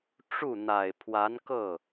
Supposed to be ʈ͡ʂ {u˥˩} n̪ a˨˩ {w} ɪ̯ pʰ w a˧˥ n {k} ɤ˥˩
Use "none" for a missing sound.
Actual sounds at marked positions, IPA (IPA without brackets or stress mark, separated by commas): u˥˩, none, k